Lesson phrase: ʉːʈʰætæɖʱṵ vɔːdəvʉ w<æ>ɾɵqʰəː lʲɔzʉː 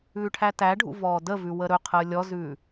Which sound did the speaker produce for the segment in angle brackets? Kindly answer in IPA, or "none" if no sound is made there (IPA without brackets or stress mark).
ə